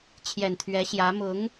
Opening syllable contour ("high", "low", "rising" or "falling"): low